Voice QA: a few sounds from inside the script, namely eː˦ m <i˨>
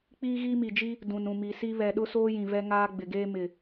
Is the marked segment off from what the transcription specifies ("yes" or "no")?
yes